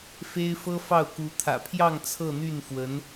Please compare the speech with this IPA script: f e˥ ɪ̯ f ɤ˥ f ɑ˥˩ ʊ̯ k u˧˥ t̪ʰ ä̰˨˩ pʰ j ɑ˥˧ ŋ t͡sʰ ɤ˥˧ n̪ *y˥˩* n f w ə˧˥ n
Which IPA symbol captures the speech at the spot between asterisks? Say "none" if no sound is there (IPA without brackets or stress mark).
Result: y˥˩